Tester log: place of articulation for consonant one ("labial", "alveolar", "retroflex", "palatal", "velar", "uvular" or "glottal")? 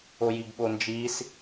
palatal